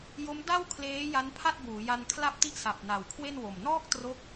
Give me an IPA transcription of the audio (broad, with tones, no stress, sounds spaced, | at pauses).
j o˦˥ m d a˥˩ w kʰ l eː˦˥ j a˦˥ n pʰ a˥˩ t̚ b uː˩˦ j a˧ n kʰ l a˥˩ p̚ t i˥˩ ʔ s a˨˩ p̚ n a˨˩ w kʰ w e˥˩ n w o˨˩ m n ɔː˥˩ k̚ t r o˦˥ k̚